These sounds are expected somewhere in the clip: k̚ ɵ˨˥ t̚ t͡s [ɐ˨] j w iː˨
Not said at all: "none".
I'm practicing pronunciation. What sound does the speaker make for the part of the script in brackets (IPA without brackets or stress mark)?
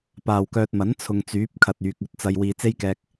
ɐ˨